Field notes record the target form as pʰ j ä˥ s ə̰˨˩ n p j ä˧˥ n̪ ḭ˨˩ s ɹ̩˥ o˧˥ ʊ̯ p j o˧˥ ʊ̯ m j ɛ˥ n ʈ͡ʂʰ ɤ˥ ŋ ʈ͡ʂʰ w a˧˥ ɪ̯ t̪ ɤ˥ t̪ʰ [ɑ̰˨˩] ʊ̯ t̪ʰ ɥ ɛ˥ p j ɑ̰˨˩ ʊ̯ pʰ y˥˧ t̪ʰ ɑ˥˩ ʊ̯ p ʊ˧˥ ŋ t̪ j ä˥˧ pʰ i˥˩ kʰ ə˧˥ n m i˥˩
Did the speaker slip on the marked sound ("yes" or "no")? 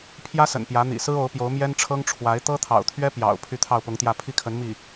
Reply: no